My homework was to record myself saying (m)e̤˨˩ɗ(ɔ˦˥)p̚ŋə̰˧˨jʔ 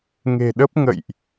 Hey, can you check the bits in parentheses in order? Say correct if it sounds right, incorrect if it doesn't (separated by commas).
incorrect, incorrect